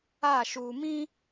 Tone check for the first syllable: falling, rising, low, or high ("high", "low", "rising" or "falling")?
falling